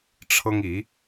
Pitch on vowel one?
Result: high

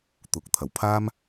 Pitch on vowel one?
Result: low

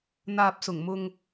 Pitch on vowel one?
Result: low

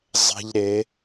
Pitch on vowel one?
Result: high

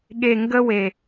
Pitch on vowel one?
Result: low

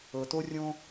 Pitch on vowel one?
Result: low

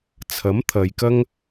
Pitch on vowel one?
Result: rising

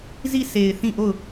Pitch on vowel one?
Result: falling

